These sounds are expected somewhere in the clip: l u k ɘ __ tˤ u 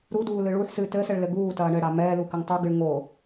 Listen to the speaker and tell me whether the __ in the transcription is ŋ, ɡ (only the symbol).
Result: ŋ